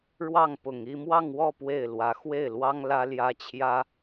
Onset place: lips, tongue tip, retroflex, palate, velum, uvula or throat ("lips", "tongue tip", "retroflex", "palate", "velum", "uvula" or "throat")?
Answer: retroflex